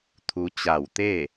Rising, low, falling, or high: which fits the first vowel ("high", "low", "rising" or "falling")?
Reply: rising